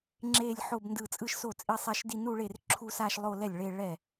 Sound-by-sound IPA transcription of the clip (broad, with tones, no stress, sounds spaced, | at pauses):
ŋ͡ǁ e˥˧ lʲ ħ o˥˧ b n d ɯ˥˩ t͡sʼ ɯ˥˧ ʃ s o˥˩ t͡sʼ i˥˧ sˤ ɛ˥˧ ʃ d i˥˧ n u˥˧ ɭ e˥˩ r ǁʰ u˥˧ s a˥˧ ʃ lˠ o˥˧ l ɛ˥˩ lʲ ɭ e˥˧ ɭ ɛ˥˩